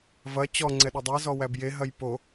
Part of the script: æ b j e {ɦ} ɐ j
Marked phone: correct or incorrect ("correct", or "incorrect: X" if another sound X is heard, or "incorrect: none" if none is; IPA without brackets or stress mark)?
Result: correct